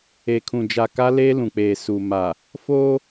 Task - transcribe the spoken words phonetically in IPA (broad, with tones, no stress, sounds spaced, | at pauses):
e˨ kʰ ũ˨ d͡ʒ a˨ k a˦ l eː˦ l ũ˨ k͡p eː˨ s u˨ m a˨ | f oː˦